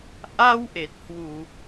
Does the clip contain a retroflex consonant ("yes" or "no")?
no